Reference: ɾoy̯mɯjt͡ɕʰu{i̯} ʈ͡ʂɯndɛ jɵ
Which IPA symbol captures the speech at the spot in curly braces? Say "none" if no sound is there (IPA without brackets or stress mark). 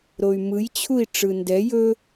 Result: i̯